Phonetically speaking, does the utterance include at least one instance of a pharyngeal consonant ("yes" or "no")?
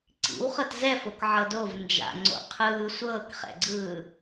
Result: yes